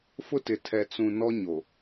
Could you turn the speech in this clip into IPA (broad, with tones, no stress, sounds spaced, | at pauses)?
f ʊ˦ t ɪ˨ tʰ ɛ˨ t͡s ũ˨ n ɔ˦ ɲ o˨